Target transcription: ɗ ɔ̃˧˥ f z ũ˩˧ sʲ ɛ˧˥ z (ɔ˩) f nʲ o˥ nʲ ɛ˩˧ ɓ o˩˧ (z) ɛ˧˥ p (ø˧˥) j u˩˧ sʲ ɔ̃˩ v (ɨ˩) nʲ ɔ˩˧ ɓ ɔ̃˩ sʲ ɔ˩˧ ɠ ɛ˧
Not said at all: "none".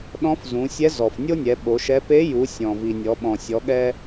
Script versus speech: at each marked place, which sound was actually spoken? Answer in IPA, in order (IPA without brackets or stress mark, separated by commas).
ɔ˩, ʃ, e˧˥, i˩